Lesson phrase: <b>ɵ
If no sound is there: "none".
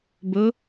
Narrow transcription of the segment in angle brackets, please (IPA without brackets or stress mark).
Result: b